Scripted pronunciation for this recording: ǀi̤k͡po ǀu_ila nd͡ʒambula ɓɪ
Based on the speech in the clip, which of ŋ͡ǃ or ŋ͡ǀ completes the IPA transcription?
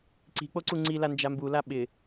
ŋ͡ǀ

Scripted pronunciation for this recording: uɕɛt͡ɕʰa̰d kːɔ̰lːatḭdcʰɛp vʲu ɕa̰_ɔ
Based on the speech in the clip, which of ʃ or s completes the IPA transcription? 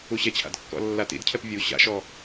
ʃ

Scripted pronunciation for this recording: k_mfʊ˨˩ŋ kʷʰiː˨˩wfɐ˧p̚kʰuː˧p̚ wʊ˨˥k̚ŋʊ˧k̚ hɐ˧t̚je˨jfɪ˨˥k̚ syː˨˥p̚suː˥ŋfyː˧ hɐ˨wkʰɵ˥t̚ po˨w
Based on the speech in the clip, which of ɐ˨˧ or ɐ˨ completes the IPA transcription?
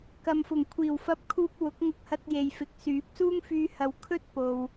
ɐ˨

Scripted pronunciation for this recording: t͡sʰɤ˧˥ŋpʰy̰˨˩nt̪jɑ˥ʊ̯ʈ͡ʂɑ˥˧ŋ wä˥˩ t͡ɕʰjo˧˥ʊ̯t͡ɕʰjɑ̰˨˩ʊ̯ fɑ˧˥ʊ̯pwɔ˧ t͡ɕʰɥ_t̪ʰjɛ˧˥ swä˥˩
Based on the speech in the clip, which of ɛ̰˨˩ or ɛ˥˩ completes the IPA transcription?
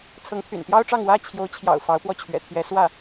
ɛ̰˨˩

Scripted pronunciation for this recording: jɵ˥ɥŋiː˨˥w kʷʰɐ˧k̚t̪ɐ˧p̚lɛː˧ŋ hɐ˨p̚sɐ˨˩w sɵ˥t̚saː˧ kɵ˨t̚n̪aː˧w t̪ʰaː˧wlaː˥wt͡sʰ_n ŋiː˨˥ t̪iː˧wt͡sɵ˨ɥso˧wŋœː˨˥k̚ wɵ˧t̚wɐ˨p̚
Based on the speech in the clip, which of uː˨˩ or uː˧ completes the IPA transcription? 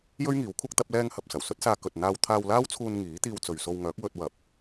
uː˧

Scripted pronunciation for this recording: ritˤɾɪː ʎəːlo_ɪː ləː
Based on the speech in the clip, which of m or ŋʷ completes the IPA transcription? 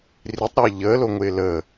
ŋʷ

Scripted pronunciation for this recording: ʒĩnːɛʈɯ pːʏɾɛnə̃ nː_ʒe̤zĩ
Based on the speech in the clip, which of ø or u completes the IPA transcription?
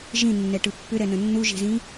u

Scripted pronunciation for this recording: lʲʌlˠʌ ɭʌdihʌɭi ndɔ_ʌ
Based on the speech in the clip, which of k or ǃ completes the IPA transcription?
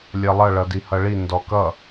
k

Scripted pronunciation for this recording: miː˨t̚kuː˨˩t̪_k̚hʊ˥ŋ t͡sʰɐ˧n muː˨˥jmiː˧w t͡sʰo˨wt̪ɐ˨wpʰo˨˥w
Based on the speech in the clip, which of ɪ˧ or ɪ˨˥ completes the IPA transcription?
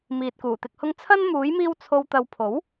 ɪ˨˥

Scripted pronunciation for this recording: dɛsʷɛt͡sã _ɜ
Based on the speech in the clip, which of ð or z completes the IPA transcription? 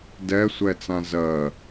z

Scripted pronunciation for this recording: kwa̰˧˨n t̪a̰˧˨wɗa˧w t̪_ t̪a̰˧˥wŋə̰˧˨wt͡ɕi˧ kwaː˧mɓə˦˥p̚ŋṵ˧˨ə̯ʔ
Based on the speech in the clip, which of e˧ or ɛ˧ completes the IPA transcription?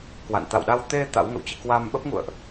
e˧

